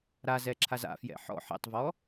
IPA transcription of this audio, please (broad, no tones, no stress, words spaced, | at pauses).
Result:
ɾazɛǁʰaz a̰ fjɛ̰ħɔ̰ ħɛ̰tˤvɔ